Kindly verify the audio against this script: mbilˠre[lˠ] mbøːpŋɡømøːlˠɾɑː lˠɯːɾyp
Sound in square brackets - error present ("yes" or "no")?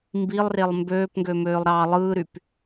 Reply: no